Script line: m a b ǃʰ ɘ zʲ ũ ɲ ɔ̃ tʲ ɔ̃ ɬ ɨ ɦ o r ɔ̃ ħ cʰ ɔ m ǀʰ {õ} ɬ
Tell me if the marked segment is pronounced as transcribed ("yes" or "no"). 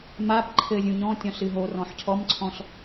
no